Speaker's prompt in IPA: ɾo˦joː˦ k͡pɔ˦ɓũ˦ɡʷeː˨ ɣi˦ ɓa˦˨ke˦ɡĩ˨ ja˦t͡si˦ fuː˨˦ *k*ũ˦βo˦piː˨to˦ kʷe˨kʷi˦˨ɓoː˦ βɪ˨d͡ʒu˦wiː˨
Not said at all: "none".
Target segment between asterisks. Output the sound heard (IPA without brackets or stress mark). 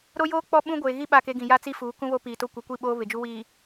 k